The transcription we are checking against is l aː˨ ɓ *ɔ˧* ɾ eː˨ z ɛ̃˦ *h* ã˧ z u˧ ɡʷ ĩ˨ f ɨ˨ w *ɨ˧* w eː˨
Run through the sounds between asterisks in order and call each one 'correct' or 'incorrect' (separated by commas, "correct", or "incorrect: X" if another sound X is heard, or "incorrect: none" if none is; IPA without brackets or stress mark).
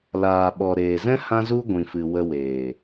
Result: incorrect: ɔ˨, correct, incorrect: ə˧